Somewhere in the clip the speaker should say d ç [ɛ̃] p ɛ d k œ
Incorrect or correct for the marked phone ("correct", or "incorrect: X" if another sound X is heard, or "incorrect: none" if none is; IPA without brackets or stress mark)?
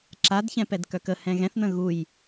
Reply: correct